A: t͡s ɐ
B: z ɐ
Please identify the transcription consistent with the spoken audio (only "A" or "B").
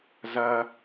B